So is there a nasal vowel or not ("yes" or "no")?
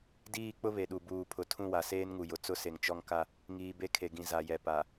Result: yes